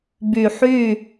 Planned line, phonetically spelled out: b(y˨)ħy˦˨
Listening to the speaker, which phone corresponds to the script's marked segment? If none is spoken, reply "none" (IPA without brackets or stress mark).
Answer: y˨